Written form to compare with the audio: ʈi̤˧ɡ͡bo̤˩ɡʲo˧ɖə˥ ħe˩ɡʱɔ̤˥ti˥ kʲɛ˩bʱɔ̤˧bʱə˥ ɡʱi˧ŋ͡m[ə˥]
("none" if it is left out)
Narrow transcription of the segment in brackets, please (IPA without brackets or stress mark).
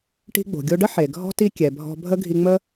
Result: ə˥